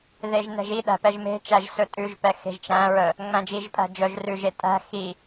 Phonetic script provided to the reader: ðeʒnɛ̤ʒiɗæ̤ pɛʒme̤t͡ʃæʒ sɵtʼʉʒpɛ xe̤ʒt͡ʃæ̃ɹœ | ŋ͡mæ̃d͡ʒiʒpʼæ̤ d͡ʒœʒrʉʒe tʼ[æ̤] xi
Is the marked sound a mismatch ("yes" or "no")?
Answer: no